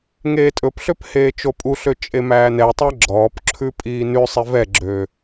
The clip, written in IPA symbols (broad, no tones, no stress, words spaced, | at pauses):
ŋeːtʼɵpɬøp heːt͡ʃopʼuɬø t͡ʃʼemæːnɛtˤæ ɡ͡ǁɔːpǁʰʉ pʼiːnʉsˤe vɛɡ͡ǁø